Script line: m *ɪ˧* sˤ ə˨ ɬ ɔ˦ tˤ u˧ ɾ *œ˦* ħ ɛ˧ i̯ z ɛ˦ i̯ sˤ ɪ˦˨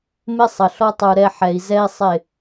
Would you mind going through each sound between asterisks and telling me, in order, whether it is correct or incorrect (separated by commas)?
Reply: incorrect, incorrect